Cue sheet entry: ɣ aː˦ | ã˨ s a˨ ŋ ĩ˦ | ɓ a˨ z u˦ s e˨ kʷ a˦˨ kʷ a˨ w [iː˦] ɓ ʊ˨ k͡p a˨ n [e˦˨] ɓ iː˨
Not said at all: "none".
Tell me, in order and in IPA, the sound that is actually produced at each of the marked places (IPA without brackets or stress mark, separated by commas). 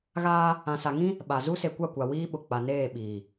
iː˦, eː˦˨